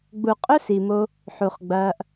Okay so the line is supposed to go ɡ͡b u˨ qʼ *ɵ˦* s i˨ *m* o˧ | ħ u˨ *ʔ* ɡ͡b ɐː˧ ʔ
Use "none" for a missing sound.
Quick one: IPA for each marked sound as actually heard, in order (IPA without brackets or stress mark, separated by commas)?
ɵ˦, m, χ